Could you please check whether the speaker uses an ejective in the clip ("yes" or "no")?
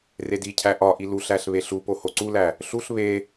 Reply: no